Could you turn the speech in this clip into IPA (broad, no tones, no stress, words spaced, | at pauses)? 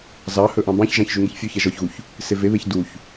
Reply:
zɑhɵ ʔɑ̃bɑ̃çʒɑ̃ç ʒʉŋeçfʲʉçɛ ʒɔçɣuç | seveβeç duç